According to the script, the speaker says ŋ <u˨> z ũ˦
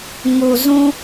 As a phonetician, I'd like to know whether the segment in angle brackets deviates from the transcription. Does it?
no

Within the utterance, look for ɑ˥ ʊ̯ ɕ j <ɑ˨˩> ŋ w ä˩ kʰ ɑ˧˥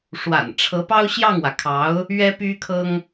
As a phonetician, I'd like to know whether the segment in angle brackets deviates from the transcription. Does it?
yes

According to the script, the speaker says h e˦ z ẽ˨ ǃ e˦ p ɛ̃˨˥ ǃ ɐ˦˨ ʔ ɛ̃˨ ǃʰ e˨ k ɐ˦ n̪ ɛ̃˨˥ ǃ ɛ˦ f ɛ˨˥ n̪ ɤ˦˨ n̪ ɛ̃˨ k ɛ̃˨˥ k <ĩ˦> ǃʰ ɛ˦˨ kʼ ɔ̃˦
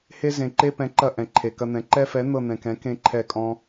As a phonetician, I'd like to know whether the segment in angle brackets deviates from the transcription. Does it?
yes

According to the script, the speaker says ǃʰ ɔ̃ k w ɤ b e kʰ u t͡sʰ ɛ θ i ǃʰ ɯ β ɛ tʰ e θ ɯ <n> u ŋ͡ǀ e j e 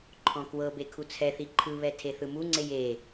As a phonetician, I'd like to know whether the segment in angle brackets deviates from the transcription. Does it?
yes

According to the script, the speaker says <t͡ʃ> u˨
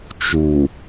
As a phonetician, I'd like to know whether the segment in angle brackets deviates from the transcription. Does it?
no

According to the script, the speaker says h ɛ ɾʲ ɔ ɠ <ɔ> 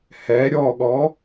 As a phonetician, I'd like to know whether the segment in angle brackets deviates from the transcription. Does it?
no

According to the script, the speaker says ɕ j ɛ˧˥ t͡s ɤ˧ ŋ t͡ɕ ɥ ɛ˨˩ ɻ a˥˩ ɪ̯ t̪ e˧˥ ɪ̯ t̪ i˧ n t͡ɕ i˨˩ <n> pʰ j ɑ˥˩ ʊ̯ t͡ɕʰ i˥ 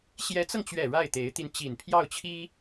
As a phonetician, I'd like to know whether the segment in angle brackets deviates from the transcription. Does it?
no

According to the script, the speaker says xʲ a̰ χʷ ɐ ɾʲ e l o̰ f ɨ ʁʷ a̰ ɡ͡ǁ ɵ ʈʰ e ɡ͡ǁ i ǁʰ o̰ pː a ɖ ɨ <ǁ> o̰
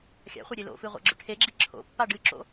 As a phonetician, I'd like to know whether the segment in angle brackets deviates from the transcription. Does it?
no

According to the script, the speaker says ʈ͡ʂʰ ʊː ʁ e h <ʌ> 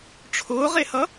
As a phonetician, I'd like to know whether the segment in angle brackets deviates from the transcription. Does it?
no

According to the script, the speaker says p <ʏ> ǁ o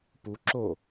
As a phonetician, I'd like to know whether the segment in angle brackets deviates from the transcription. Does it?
yes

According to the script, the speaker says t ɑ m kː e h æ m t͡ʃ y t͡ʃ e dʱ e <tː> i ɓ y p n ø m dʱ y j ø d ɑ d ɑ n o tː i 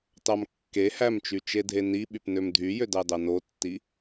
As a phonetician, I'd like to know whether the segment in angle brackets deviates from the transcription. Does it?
yes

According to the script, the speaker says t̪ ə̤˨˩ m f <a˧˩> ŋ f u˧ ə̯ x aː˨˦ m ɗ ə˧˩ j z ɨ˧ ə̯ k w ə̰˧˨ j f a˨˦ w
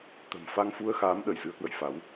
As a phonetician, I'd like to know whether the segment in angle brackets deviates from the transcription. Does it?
yes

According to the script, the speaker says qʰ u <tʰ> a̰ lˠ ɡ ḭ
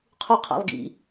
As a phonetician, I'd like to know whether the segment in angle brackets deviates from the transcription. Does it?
yes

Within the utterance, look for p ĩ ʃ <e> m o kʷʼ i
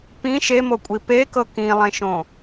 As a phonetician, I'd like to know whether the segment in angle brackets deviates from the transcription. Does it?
no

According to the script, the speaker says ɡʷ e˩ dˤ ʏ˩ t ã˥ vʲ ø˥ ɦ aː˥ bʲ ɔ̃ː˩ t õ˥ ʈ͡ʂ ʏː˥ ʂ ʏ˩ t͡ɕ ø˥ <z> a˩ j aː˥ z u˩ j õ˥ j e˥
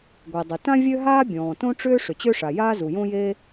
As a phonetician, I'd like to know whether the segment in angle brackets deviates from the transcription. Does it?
yes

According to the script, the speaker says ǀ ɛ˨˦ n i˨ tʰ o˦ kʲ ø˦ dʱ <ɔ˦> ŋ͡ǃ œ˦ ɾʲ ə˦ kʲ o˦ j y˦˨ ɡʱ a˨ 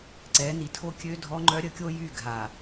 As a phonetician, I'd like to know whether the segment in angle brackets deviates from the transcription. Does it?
no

